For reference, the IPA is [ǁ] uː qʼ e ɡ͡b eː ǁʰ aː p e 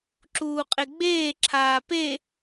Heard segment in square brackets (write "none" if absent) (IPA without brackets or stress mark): ǁ